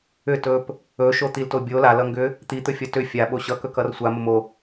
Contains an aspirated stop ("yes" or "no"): no